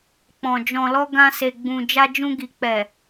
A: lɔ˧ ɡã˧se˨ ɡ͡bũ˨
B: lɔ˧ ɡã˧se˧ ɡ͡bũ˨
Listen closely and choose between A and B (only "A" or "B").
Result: A